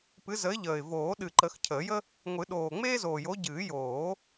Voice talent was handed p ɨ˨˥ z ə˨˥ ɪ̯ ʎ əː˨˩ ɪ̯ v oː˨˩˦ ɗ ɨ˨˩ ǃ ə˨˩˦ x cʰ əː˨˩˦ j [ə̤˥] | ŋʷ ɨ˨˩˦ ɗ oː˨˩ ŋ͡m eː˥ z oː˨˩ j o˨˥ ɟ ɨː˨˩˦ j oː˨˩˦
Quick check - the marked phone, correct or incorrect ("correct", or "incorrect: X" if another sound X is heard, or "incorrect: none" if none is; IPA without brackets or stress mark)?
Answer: incorrect: ə˥